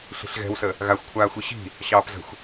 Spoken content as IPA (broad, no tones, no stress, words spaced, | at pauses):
ɬi̤ɬɣɛ̤wsə | ɣaxʷkʷʰaː xʷiɕi̤ | ɕɑːpzə̤xʷ